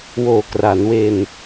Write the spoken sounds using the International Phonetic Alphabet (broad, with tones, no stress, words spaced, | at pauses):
woː˨˩kra˩˦nwe˧n